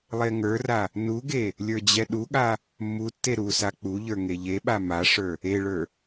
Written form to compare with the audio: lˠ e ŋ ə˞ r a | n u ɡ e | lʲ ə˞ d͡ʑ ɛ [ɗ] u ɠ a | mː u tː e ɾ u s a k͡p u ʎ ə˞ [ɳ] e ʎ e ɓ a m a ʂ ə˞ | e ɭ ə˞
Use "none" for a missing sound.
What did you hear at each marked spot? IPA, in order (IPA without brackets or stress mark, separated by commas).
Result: ɗ, ŋ